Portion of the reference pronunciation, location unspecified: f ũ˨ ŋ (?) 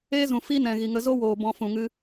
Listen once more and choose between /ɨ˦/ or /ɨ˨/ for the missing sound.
ɨ˦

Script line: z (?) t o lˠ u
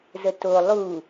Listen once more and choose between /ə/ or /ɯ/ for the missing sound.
ə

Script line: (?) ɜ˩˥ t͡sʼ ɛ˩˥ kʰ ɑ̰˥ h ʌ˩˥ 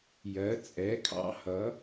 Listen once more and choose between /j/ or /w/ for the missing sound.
j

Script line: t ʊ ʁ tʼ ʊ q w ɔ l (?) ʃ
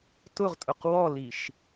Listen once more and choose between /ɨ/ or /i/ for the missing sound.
i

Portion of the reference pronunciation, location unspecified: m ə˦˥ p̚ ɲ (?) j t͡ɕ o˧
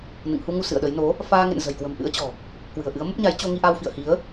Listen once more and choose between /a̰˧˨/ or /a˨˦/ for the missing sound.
a˨˦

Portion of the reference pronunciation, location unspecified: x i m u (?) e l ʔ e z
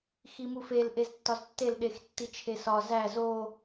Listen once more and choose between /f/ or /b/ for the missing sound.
f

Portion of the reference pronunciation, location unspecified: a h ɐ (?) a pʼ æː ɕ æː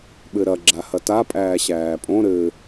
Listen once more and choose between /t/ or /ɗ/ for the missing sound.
t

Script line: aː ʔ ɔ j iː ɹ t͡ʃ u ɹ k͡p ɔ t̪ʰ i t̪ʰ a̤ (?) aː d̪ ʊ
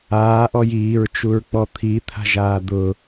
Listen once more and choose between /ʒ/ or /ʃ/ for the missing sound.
ʒ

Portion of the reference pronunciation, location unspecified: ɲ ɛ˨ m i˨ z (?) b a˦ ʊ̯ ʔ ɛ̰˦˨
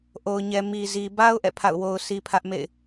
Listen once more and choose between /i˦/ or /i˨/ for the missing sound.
i˨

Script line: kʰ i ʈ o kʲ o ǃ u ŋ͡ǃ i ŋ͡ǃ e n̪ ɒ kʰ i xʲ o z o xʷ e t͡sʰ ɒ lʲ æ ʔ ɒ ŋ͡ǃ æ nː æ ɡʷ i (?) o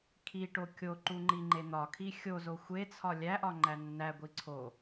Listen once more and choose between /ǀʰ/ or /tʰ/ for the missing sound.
ǀʰ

